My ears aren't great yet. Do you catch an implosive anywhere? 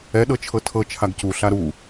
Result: yes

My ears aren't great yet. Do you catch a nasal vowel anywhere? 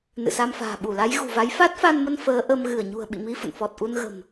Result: no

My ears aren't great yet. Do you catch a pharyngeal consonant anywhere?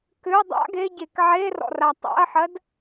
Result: yes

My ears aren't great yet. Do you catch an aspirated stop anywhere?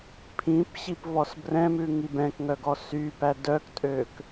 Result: yes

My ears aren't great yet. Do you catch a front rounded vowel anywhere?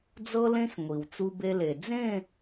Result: no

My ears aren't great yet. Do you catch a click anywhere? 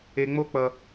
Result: no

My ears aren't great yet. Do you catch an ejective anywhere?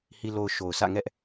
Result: no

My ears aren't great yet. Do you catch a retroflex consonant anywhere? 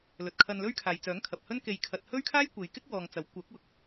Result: no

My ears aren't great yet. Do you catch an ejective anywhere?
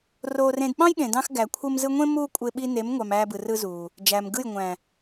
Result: yes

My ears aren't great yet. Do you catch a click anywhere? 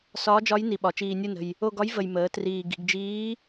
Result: no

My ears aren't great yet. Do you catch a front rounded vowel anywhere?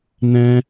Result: no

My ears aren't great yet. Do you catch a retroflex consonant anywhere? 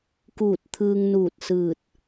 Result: no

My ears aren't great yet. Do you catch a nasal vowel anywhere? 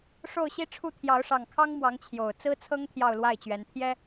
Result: no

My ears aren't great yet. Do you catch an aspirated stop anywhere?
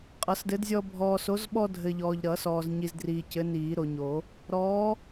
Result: no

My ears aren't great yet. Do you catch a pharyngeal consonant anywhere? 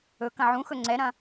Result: yes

